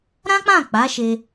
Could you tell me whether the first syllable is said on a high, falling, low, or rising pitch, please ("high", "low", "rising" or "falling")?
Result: high